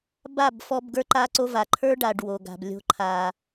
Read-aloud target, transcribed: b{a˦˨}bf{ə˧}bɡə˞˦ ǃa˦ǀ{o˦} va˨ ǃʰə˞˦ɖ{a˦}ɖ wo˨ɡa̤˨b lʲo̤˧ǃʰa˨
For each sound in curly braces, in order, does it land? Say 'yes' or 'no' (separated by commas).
yes, no, yes, no